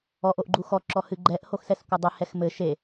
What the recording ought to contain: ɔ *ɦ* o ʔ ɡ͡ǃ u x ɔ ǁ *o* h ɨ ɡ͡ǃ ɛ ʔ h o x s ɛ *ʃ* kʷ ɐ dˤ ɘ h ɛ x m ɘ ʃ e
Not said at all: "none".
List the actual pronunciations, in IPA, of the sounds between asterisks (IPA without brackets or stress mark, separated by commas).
ʔ, ɔ, s